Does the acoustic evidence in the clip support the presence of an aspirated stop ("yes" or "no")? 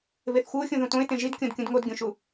no